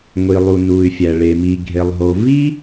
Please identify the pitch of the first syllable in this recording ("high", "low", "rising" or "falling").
low